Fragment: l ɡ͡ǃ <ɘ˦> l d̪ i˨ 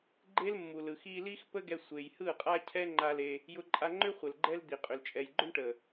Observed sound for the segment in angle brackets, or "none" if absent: ɛ˦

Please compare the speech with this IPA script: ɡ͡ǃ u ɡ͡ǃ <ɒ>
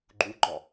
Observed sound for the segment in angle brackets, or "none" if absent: ɒ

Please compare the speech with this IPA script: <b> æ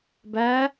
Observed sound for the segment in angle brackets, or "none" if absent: b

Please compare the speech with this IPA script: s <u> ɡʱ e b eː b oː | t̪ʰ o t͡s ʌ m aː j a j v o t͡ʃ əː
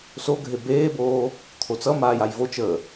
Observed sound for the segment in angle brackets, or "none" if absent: o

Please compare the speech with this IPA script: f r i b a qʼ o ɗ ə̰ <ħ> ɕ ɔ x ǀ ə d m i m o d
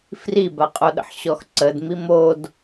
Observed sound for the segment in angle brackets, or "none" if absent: ħ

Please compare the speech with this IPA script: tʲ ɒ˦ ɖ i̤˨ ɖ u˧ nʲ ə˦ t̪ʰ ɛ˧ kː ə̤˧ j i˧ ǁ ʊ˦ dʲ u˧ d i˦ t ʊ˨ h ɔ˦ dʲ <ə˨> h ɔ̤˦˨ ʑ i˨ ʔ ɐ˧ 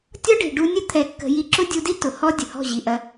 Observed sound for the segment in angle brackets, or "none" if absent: ə˨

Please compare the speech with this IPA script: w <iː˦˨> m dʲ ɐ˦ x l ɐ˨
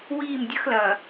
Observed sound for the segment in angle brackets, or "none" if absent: iː˦˨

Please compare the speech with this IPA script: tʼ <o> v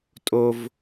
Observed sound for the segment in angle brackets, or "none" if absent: o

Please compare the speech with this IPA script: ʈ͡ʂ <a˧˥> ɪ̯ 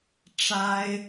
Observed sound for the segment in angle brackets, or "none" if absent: a˥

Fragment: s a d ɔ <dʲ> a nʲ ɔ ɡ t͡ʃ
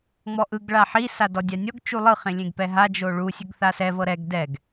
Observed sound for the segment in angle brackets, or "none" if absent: dʲ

